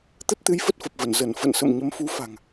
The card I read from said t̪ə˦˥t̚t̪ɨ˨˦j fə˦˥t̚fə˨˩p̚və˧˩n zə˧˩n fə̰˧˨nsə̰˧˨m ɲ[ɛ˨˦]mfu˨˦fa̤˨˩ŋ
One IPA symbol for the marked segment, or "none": ə˨˦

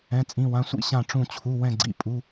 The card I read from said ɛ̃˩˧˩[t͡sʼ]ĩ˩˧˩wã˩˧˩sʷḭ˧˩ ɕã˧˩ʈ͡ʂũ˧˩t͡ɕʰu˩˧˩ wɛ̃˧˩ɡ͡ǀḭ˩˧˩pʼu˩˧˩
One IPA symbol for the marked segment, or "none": t͡sʼ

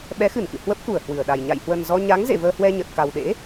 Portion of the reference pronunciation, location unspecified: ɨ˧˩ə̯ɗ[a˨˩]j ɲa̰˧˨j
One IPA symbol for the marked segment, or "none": a˨˩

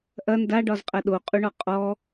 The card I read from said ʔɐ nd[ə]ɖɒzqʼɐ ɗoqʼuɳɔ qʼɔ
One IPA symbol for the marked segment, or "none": a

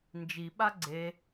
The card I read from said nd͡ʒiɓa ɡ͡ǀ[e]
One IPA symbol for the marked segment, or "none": e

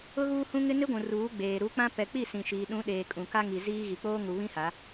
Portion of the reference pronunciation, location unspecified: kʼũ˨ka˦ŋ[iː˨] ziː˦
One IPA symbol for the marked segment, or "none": i˨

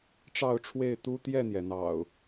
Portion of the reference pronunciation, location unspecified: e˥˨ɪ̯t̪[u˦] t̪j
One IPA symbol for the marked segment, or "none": u˦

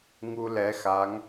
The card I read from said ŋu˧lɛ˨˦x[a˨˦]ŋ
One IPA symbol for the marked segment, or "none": a˨˦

